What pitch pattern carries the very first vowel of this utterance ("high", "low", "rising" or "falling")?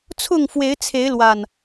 falling